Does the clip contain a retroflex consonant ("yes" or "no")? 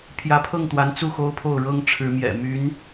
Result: yes